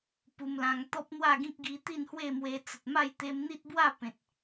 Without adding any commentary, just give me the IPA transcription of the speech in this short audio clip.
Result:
p u˧ m l ã˧ ŋ t̪ ɔ˦ p̚ n̪ w a˥˧ ɡ ĩ˦ k̚ ɡ i˧ t̪ i˥˧ n h w e˥˧ m w e˧ t͡s ə˨ t̚ m a˥˧ j t̪ e˧ m n̪ i˦ t̚ b w a˥˧ p ẽ˨ t̚

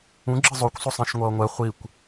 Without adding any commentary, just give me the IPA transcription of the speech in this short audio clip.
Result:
ũ ɡ͡ǁ ɯ zˤ o kʷ sˤ o sˤ ẽ ʃ ŋʷ ʌː ŋʷ ɛ χʷ i kʷ

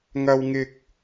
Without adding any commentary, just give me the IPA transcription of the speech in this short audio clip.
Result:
ŋ ɐ˥ w ŋ ɪ˥ k̚

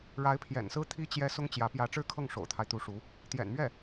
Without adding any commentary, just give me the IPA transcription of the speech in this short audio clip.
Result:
ɻ a˧˥ ɪ̯ pʰ j ɛ̰˨˩ n s ɹ̩˥ t̪ʰ i˥ t͡ɕ j ɛ˥ s ʊ˥ ŋ t͡ɕ j ä˧˥ p j ä˧˥ ʈ͡ʂ ɻ̩˥˧ kʰ ɤ˥˩ ŋ ʂ o̰˨˩ ʊ̯ t̪ʰ a˦ ɪ̯ t̪ u˧˥ ʂ u˧˥ | t̪ j ɛ̰˨˩ n m ɥ ɛ˥˩

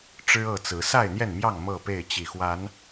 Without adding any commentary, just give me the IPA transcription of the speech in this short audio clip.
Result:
ʈ͡ʂ ɻ̩˦ ɤ˥˨ t͡s ɹ̩˨˦ s a˥˨ ɪ̯ n̪ j ɛ˥˨ n m j ɑ˥˨ ŋ m ɤ˥˨ p e˥˨ ɪ̯ t͡ɕ i˨˩ x w a˨˦ n

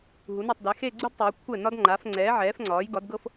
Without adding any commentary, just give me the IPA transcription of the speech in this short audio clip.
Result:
ɦ u˩˧ n u˧˩ tˤ d ɛ˩˧ x e˥˧ ɡ͡ǀ u˥ d tˤ e˩˧ kʷʰ ɛ˧˩ n ɒ˧ d ŋ͡ǃ a˩˧ f ŋ͡ǀ ɛː˩˧ ʕ ɛː˩˧ f ŋ͡ǀ ɒː˩˧ j ɡ ɒ˩˧ d ɡ ɤ˧ f

